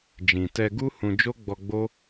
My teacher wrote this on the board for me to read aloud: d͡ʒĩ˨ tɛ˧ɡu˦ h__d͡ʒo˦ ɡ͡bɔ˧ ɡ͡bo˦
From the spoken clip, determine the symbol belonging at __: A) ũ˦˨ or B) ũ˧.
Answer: B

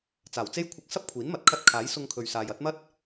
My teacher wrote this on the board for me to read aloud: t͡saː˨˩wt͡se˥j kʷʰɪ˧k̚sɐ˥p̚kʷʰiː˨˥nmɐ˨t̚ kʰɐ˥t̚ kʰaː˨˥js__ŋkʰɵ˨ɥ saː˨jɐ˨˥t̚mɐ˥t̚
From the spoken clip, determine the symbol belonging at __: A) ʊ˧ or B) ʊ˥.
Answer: A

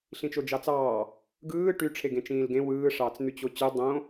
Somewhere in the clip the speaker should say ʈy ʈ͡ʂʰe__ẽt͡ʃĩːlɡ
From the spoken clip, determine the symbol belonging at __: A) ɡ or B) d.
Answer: A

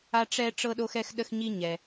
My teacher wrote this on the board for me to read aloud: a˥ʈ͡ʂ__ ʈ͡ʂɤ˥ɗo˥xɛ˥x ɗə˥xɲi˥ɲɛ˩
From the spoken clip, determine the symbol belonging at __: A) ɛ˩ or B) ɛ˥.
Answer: B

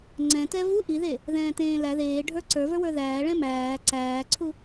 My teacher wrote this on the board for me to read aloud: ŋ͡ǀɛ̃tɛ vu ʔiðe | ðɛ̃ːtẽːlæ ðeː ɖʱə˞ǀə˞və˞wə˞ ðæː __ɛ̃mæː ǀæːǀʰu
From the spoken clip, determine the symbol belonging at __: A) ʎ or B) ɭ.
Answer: B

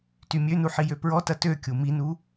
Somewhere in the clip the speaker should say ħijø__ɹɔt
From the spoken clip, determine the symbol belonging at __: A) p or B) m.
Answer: A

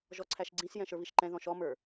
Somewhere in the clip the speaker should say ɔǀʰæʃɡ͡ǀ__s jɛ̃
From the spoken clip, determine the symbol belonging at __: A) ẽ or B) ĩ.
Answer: B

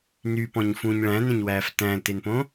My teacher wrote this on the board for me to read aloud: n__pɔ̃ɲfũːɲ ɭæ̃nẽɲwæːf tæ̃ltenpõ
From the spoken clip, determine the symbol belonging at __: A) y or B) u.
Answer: A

